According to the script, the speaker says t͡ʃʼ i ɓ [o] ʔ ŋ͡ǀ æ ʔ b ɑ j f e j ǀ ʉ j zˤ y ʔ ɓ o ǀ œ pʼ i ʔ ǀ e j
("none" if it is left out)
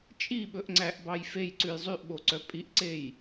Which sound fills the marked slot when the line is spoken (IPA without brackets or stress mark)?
ɵ